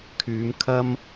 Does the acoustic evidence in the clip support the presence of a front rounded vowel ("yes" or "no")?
yes